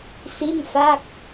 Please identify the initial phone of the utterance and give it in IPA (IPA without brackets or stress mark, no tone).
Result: s